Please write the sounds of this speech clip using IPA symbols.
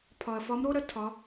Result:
pʰ ɒ˩ ɐ̯ f ɒ˧˥ m ɾ o˥ ɾ ɐ˥ tʰ ɒ˩˧

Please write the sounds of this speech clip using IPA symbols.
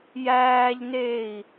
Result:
j æː ʎ n e i̯

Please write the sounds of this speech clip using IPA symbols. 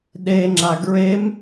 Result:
ɗ e ŋ͡ǁ a ɡ ɹ e m

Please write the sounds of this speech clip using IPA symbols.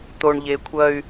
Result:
t̪ o˨ ɳ ʎ e˨ kʷʰ ɐ˦ y̯

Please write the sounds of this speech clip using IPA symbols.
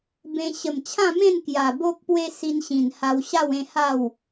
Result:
b ẽ˦ ɕ ə˨˩ m t͡ɕʰ ã˥˧ m ẽ˥˧ n k j a˨˩ b o˦ k̚ p w e˦ s i˧ n ɕ ĩ˨˩ n h a˧ w ɕ a˥˧ w ẽ˥˧ h a˥˧ w

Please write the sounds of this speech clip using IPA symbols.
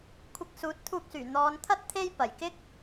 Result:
kʷʰ ɪ˧ k̚ s uː˨˥ t̚ t̪ʰ uː˧ k̚ s yː˨˩ n̪ ɔː˨˧ n t̪ʰ ɐ˥ t̚ t̪ʰ e˥ j p ɐ˨˩ j k ɪ˥ k̚

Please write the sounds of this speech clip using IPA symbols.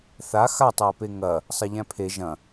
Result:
θ a x a tˤ j ɐ p e ŋ ɐ | sˤ ɐ ʎ æ̃ pʰ e ʒ ɐ̃

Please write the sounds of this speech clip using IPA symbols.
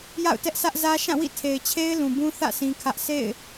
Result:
j a̰˦˨ ʊ̯ t ɛ˦ ʔ s ä˦ ʔ z ä˦ ʃ ã˦˨ w ḭ˦˨ tʰ e˨ ɪ̯ t͡ɕʰ e˦ ɪ̯ l ũ˨ b ũ˦ θ ä̰˦˨ sʰ ĩ˦ kʰ ä˦ ʔ sʰ ḛ˦˨ ɪ̯

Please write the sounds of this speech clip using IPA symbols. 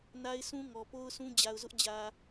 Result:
n a˦ ɪ̯ s ũ˦ ŋ ɔ˨ p o˦ ʊ̯ s ũ˦ d͡ʑ a˨ ʊ̯ z ʊ˦ ʔ d͡ʑ ä˨

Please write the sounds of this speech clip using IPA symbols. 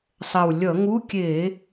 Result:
sˤ ɛ˨˩ w lʲ ʌ˧˩˧ ŋ u˧˥˧ kʲ e˧˩˧

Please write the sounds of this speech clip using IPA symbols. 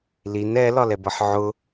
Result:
l i n ɛ l ɒ l ɛ b ʌ ħ ʕ ʊ

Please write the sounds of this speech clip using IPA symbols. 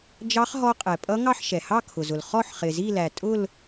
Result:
d͡ʒ ɑ˦˥ χ ɦ ɔ˦˥ qʼ ɛ˩ pʼ ʌ˦˥ ŋ ɑ˥˧ ħ ʃ ɛ˩ h ɑ˥˧ kʰ ʊ˩ z ʊ˩ l χ ɔ˥˧ ħ χ ɪ˩ z i˥˧ l æ˩ tʼ ʊ˥˧ l

